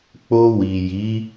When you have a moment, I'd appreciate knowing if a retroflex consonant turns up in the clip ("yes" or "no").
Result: no